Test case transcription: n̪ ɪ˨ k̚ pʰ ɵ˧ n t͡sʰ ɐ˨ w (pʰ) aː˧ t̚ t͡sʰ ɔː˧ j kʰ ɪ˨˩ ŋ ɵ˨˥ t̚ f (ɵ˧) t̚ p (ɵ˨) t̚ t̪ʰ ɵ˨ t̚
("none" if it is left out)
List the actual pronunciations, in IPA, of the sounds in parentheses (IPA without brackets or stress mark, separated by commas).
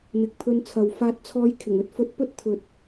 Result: f, ɵ˧, ɵ˥